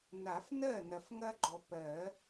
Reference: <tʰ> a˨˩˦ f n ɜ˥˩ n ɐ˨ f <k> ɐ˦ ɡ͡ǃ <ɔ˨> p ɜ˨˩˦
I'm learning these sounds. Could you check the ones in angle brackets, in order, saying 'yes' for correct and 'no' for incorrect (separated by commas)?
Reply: no, no, yes